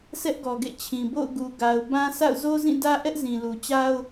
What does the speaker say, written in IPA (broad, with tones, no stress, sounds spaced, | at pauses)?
sʰ ɛ˦ ʔ ɡ ɔ˨ ɡ ḛ˦˨ t͡ɕʰ ĩ˨ b o̰˦˨ ʊ̯ ɡ u˨ ɡ a˨ ʊ̯ b ã˦ sʰ a̰˦˨ ʊ̯ z o˦ z ĩ˦˨ d ä˦ ʔ ɛ˦ ʔ z ĩ˨ l u˨ t͡ɕ a˦ ʊ̯